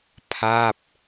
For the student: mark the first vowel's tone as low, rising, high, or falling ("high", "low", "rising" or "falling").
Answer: falling